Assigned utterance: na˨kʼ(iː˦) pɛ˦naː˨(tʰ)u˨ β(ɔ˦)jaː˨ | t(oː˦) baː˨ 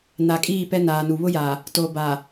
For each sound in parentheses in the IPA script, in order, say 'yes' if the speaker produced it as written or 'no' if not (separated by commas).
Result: no, no, no, no